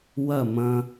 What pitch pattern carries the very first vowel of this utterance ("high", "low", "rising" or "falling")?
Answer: falling